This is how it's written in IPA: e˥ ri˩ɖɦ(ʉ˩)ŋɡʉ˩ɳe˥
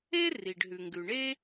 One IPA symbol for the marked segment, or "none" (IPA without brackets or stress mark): ʉ˩